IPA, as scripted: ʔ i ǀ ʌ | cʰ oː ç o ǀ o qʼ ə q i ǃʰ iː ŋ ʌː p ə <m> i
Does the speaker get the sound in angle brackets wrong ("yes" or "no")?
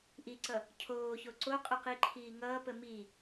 no